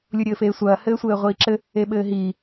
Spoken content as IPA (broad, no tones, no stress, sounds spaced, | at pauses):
lʲ u ɾʲ ɘː f eː sʷ ɐː h ɘː sʷ ɘː ʁʷ iː ǁ ɘ | e ɓ ɘː ɦ iː